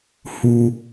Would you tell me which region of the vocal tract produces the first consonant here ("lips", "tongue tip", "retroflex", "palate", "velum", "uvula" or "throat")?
throat